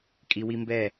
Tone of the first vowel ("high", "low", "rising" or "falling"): low